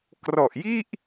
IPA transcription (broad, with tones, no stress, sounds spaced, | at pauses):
k r ɔ˨˩ ʔ j i˥˩ ʔ